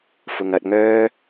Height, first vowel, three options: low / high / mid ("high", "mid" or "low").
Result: high